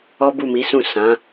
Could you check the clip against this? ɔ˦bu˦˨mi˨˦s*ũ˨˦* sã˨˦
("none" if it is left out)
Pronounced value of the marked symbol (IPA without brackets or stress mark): ũ˦˨